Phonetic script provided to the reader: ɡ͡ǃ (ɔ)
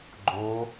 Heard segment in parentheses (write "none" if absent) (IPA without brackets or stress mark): o